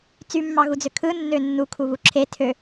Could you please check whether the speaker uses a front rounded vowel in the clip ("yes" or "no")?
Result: yes